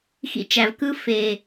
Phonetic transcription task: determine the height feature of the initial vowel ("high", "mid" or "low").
high